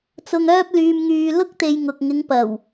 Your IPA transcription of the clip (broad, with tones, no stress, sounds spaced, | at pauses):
t͡s ʊ˧ ŋ œː˥ p̚ l yː˧ m ŋ yː˧ l ʊ˥ k̚ t̪ e˨ j ŋ ʊ˨ k̚ ŋ ɪ˨˧ ŋ p ɐ˨˩ w